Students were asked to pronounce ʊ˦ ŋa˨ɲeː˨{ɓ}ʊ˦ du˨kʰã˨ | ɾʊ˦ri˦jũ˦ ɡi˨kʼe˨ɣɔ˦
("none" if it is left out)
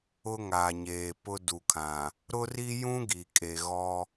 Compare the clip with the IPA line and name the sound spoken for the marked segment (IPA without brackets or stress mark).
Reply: p